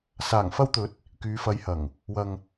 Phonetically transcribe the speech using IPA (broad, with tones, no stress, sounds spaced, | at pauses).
s aː˨˩ ŋ f ɐ˧ w t̪ ɵ˨˥ t̚ | k yː˨˧ f ɐ˨˧ j h ɐ˨˩ ŋ | w ɐ˨ ŋ